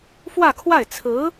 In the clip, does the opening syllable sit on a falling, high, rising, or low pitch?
falling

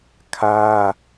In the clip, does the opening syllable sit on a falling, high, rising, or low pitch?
high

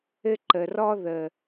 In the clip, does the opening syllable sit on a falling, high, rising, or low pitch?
high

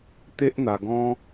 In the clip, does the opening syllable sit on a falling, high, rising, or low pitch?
high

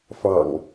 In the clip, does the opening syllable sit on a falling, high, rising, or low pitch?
low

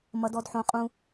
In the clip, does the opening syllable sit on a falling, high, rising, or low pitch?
high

